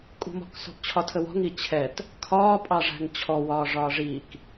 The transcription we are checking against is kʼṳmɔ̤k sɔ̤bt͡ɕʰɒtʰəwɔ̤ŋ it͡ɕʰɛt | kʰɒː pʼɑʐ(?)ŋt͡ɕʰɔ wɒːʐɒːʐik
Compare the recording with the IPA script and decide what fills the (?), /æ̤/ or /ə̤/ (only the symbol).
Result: æ̤